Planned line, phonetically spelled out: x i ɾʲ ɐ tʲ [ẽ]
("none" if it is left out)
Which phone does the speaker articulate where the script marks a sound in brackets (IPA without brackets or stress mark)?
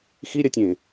ẽ